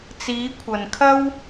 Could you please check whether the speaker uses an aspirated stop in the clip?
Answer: yes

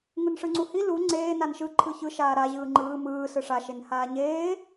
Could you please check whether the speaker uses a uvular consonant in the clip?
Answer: no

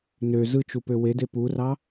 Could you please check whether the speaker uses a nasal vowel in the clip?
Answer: no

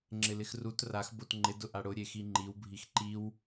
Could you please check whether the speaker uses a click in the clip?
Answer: yes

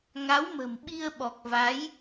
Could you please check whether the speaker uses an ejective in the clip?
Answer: no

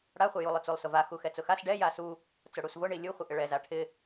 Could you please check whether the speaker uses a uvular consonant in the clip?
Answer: yes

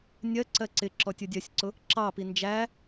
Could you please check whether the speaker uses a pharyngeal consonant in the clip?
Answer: no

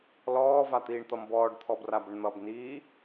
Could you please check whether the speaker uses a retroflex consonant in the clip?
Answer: yes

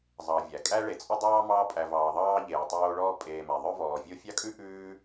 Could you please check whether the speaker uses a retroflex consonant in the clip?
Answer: yes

